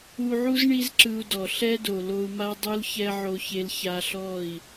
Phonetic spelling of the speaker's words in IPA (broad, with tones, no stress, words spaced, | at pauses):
u˧ʕu˦z ɳi˦zǁɯ˧u̯dɔ˨ ɬɛ˦do˨lo˧u̯ma˦ dˤu˦lçɛ˦ ʕo˦çe˦l ça˧ɬɔ˦˨i̯